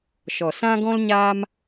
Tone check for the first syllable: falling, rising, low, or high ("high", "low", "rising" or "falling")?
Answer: low